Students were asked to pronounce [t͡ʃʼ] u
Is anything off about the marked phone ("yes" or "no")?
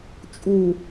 no